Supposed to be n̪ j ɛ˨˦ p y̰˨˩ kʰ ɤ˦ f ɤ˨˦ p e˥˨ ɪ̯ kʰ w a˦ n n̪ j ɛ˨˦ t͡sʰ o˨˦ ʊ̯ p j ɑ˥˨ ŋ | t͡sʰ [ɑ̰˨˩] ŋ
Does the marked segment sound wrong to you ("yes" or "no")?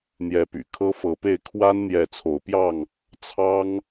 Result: yes